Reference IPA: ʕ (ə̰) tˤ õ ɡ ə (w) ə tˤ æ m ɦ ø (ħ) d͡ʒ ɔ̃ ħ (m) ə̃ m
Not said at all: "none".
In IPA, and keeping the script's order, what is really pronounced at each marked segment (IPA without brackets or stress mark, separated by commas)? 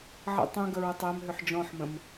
ə̰, ɹ, ħ, m